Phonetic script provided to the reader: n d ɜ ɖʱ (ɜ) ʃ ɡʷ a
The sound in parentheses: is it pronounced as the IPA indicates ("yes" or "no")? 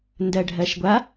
yes